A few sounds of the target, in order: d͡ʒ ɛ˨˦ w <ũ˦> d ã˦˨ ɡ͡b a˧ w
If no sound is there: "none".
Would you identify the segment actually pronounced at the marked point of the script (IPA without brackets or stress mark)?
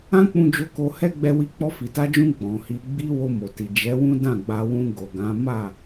ũ˦